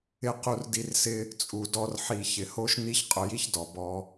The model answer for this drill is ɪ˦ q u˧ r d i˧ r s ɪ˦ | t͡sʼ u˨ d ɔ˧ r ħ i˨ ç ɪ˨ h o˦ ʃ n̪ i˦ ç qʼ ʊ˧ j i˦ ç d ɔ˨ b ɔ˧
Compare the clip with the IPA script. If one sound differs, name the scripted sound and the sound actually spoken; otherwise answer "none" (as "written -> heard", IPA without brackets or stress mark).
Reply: none